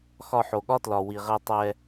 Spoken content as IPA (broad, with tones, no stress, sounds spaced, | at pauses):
x ɒ˧ ħ o˨ ɠ ɒ˦ t l ɒ˨ w i˨ ʁ ɛ˧ tˤ ɛ˧